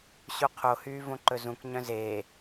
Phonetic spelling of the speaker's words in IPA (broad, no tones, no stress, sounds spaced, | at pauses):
ɕ u qʰ o h yː v õ ǃ ɵ z ũ k ɲ œ̃ z eː